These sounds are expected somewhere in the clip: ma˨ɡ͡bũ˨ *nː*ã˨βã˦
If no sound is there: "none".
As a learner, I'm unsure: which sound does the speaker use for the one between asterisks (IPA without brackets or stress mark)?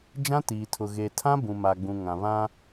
ŋ